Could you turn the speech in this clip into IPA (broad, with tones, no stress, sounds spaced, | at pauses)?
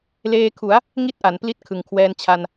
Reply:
l eː˧ kʰ u˩˦ a̯ | ŋ i˥˩ t̚ ʔ a˩˦ n p l i˦˥ t̚ kʰ ɯ˩˦ ŋ kʰ w ɛː˧ n t͡ɕʰ a˧ n